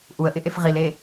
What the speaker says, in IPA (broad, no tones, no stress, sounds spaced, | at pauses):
ʔ u ə̯ ʔ ɪ ʔ e f ʁ i l e